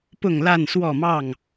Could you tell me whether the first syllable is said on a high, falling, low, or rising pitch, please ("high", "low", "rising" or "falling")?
falling